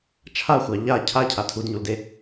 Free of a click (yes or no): yes